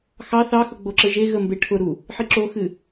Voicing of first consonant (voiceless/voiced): voiceless